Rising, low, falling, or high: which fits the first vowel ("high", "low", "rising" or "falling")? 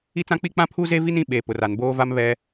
high